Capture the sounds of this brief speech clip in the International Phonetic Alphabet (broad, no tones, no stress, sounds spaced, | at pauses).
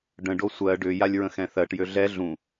ɖ ə̃ ɖ o sʷ ɜ ɖ ʏ j a lʲ ɹ ə̃ x ɛ̃ θ ɜ ʈ j ø ɮ ɛ ɮ ũ